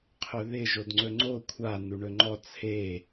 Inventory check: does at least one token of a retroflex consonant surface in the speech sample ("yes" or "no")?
yes